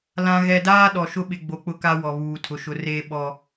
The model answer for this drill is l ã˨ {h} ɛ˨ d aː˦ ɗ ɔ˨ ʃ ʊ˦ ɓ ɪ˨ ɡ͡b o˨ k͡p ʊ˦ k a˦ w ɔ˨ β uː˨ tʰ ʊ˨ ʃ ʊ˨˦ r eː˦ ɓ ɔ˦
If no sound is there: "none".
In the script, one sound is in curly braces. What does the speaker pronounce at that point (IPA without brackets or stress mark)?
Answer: ɣ